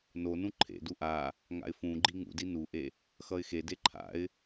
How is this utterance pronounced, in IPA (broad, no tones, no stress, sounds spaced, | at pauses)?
n o n ũ ǃʰ ḛ d u ʔ a | ŋ a̰ ɪ̯ f ũ ɡ͡ǃ i ŋ ṵ d i n u ʔ e | x ʌ ɪ̯ x e d e ǃʰ a̰ ɪ̯